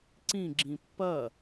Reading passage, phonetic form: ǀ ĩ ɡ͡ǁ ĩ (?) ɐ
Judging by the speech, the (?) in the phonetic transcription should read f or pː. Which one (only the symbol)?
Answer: pː